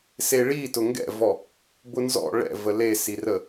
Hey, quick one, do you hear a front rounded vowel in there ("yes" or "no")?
no